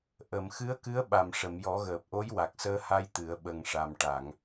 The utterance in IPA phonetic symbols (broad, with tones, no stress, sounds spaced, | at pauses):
ʔ ə˨˩˨ m x ɨ˧˥ ə̯ k ɨ˧˥ ə̯ ɓ a˨˩ m ʂ ə˨˩˨ m j ɔ˨˩˦ ɣ əː˨˩ p̚ ʔ o˧˥ j w a˨˩ k̚ s əː˧ h a˧ j t̪ ɨ˨˩˦ ə̯ ɓ ə˨˩ ŋ ʂ a˨˩ m ʈ a˨˩˨ ŋ